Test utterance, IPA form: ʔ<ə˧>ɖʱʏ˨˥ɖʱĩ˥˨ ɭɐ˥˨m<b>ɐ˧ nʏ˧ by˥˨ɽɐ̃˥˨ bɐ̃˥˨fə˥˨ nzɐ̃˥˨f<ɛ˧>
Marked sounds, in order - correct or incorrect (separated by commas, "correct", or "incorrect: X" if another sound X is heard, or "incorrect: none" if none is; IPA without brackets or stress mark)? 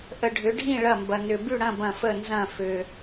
correct, correct, incorrect: ʏ˧